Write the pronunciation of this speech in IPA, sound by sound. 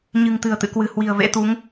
ɲ ɨ̤˨˩ ŋ t̪ ɨ̤˨˩ ə̯ t̪ ɨ̰˧˨ k w ɨ̤˨˩ h w i̤˨˩ ə̯ v ḛ˧˥ t̪ u˨˦ ŋ

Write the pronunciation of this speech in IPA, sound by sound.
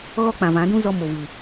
ɣ ɔ˦ k͡p ã˨ v ã˨˦ d ũ˦ z ɔ˦ m o˨ v ɨ˨

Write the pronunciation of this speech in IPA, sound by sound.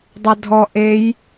dˤ ʌ dʱ ɔ ʔ e j

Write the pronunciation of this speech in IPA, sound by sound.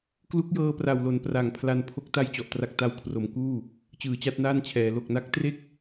k l u˦˥ k̚ j ɤː˧ p r a˨˩ w l o˩˦ n p r a˩˦ ŋ pʰ l a˧ n pʰ o˦˥ k̚ t a˥˩ j t͡ɕ ɔ˨˩ ʔ t r a˦˥ k̚ t a˦˥ w kʰ r o˩˦ m k uː˥˩ | t͡ɕ ɯː˩˦ t͡ɕ a˥˩ t̚ n aː˥˩ n t͡ɕʰ ɛː˩˦ l o˨˩ k̚ n a˦˥ k̚ t r e˥˩ k̚

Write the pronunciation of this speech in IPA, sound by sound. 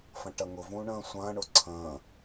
f ɐ̃ ʈ ɐ ŋ ʊ v ũː ɳ ə̃ː sʷ ɐ̃ː ɳ ʊ ǀʰ ə̃ː

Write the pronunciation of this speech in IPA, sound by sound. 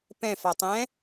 p ɛ̃ f a tˤ ɛ̃

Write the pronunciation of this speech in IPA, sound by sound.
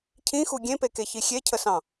cʰ ĩ x u ɡʲ ẽ p e k e ç i xʲ e cʰ ə s ɑ̃

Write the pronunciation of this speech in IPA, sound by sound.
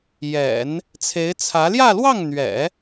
j ɛ̰˨˩˦ n | t͡sʰ e˧˥ ɪ̯ t͡sʰ ä˧˥ l j ä˥˧ l w ɑ˥˩ ŋ n̪ ɥ ɛ̰˨˩˦

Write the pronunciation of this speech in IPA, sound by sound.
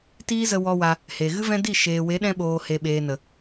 t iː˦ z ə˧ w ɔ˧ w a˧ | h e˨ ɣ ɨ˦ v ɛ̃˦ d i˦˨ ʃ eː˨ w e˨˦ ɗ ɛ̃˧ ɓ oː˨ h e˨ ɓ eː˨ n ə˨

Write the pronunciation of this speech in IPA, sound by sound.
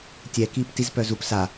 tʲ ɛ k iː p t i z p œ z u p s a

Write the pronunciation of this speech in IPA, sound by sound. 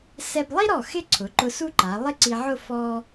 s ɛ˧ b lˠ i˥ ɾ ɔ˧˩ x ɪ˥˧ ǀʰ ʊ˩˧ ǃ ʊ˧ s u˥ ǃ a˩˧ lˠ ɪ˥˧ ǀ i˧ ʕ ʊ˥˧ f ɔ˧

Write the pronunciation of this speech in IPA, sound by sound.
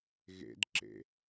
ɣ ḛ d ǁ ḛ

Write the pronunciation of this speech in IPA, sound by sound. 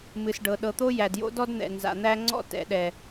m ɨ˨ s ɖ ɤ˨ ɗ ɤ˨ t̪ o˦ j æ˨ d j o̰˦ d ɔ˦ d n̪ ɛ̰˨ n z a̰˨ n̪ æ˦ ŋ͡ǀ ɔ̰˦ t ɛ̰˨ ɗ ɛ˨

